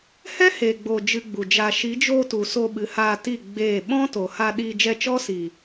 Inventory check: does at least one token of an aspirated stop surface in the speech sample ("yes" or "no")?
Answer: no